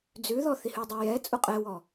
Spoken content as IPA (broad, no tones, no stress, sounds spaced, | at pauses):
d͡z ʉ ð ɔ θ i h ʉ dˤ e j ɛ t͡sʼ u qʼ ɛ w ɔ